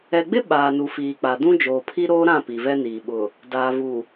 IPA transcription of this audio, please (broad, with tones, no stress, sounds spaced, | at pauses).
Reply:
ɛ˨ ɡ͡b ɪ˦ ɓ aː˨ n u˨ f iː˨ k͡p a˨ d ũ˦ d͡ʒ oː˨ pʰ i˦ ɾ oː˦ ɾ ã˦˨ p i˨ v ɛ˦ n iː˨ ɓ ʊ˨ | d aː˨ v u˨